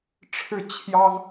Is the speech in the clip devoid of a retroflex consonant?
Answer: no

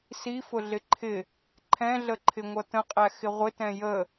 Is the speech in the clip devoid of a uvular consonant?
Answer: no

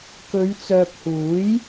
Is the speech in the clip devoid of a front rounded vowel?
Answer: no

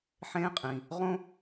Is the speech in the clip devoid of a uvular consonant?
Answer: no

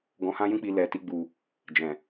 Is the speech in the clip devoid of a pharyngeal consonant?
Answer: yes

